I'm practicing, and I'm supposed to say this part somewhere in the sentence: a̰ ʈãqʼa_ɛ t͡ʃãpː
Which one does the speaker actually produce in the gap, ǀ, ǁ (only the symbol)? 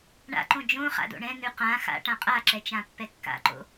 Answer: ǁ